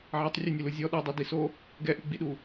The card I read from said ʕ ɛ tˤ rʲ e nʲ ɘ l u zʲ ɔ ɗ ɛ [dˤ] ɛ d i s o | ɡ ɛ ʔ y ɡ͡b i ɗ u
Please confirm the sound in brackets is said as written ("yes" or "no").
yes